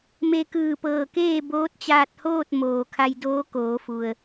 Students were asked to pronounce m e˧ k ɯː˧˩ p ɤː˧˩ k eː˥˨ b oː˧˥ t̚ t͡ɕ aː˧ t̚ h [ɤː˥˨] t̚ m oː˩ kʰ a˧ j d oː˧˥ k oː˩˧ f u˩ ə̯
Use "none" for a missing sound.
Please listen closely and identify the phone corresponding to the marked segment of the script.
oː˥˨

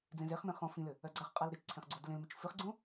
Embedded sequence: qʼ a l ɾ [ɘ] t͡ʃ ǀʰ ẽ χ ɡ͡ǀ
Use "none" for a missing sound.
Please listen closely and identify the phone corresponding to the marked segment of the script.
ɘ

